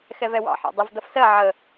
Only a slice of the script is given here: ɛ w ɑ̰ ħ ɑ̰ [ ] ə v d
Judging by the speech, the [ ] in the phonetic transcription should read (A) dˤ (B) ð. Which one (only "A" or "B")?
A